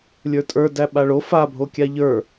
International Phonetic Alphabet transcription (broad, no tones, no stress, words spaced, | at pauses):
lʲə˞tʼə˞ dæɓaɭo fabʱo kʲaʎə˞